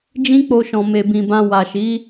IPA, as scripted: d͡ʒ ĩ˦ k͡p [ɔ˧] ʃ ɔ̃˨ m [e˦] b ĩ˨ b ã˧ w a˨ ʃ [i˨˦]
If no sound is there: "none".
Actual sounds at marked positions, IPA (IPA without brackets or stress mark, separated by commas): o˧, e˨, i˨˦